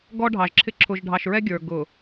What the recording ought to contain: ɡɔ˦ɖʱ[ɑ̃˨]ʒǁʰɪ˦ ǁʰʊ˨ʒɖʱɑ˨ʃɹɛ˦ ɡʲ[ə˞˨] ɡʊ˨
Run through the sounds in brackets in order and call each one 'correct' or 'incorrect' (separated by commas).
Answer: incorrect, correct